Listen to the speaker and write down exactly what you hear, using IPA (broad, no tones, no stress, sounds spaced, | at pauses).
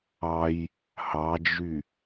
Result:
ɑ j | h ɑ d͡ʒ y